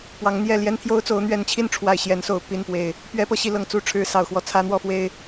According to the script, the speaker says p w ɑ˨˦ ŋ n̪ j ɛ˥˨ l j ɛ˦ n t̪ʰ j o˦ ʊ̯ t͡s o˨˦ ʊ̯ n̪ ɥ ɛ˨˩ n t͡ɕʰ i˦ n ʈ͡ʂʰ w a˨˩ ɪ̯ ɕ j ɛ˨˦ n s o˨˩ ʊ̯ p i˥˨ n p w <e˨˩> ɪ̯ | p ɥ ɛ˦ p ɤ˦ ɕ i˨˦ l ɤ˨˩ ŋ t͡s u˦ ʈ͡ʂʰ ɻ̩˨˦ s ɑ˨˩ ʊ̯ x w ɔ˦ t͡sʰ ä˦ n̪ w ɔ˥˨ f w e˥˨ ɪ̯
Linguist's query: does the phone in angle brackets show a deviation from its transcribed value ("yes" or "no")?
no